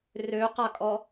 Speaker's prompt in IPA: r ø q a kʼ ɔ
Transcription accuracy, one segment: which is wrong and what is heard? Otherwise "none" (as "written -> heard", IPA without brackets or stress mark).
none